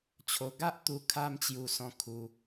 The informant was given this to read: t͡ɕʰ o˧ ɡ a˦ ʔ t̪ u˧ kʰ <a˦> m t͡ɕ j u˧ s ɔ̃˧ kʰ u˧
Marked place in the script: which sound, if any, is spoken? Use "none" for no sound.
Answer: a˦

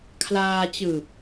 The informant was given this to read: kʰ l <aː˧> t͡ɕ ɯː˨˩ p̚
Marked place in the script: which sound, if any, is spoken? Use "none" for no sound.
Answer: aː˧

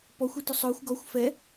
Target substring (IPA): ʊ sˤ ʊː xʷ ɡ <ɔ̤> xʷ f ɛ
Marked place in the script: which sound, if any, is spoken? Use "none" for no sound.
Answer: ɔ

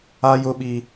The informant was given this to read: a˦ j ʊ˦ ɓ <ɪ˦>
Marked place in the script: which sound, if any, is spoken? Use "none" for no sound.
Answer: i˦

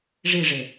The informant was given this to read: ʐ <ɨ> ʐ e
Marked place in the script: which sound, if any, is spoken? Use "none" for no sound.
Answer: i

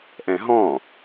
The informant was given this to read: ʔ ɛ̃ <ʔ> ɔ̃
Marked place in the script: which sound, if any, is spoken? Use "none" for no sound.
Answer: ɦ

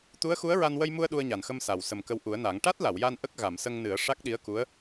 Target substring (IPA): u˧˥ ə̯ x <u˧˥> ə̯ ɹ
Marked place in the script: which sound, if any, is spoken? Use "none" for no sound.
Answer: u˧˥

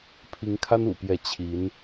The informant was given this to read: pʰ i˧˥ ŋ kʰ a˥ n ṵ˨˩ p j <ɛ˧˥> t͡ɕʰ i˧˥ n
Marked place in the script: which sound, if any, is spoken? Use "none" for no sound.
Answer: ɛ˧˥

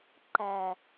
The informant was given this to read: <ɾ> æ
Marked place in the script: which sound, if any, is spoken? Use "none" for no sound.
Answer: ǃ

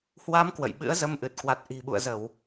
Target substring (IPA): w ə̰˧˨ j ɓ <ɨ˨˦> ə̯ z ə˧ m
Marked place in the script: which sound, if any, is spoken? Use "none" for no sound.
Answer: ɨ̰˧˥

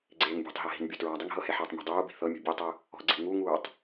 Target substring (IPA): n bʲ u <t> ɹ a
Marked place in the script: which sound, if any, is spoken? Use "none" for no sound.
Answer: t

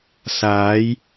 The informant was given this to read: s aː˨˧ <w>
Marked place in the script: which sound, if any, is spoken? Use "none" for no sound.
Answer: j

